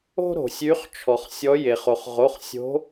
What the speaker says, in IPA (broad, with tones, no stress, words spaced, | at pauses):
o̤˦ ɾo̤˩sʲy˨˦χ t͡ʃʰɔ˩χsʲɔ˨˦ je˩χo˩χʁo˩˧˩χsʲo̤˨˦